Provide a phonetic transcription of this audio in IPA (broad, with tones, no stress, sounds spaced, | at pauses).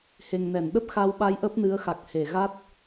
h e˨˩ ŋ n ɛ˧˩ n ɗ ə˦˥ p̚ x a˧ w ɓ a˧ j ʔ ə˦˥ p̚ n ɨ˨˦ ə̯ x a˨˩ k̚ h e˧˩ ɣ a˦˥ t̚